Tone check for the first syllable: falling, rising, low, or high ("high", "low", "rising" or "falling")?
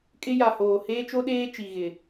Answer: high